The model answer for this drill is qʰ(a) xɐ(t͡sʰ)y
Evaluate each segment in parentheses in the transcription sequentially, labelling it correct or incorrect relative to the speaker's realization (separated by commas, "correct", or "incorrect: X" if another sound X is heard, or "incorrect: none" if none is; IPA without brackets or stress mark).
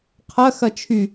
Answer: incorrect: ɐ, incorrect: t͡ʃʰ